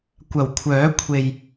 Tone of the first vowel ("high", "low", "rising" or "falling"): low